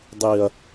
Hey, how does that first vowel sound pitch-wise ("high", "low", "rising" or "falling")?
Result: low